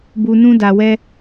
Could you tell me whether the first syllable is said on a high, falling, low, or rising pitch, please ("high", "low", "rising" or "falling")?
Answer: high